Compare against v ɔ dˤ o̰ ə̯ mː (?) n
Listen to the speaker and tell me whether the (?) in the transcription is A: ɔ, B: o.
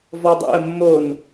B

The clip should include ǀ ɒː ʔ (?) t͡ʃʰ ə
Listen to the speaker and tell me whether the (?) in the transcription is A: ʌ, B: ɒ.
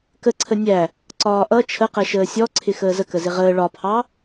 A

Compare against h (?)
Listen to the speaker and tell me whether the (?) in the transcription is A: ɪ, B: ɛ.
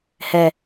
B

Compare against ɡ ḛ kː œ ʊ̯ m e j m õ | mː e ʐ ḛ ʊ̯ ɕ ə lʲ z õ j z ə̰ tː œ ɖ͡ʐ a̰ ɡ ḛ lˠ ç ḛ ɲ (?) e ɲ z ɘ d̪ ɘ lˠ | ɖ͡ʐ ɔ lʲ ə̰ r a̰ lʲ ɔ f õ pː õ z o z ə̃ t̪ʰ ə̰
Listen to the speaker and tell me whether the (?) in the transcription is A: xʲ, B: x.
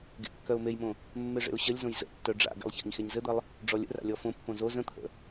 B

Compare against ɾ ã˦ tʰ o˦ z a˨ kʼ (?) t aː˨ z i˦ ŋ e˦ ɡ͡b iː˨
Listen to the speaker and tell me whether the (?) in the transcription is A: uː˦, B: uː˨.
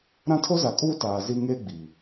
A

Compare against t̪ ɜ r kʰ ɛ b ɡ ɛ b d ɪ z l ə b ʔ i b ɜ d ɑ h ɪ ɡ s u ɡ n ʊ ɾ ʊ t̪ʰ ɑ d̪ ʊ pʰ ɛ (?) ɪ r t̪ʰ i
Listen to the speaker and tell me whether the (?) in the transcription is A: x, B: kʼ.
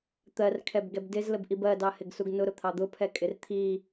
B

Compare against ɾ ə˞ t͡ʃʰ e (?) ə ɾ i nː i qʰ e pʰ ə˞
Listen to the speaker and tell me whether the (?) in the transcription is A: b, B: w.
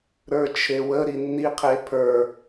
B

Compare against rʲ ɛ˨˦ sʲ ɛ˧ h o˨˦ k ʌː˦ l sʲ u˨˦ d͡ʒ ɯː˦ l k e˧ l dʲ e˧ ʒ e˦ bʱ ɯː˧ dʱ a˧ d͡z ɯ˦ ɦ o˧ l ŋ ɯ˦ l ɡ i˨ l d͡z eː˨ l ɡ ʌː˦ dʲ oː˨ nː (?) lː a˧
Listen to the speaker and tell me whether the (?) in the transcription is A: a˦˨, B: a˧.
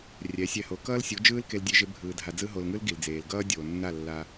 A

